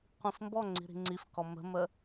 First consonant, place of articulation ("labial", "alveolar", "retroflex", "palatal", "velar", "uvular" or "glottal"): uvular